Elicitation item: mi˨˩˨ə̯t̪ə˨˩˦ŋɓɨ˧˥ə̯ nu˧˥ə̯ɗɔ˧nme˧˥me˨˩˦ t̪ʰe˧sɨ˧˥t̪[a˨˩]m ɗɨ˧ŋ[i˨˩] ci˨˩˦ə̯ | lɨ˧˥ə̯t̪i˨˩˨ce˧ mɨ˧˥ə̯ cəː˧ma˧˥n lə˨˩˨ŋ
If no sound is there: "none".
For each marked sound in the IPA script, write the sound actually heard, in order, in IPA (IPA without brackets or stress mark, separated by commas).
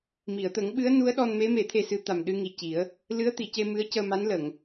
a˨˩, i˨˩